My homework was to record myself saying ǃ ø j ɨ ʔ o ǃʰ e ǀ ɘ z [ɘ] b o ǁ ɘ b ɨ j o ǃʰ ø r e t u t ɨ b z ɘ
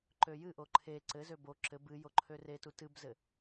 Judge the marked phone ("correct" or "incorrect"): incorrect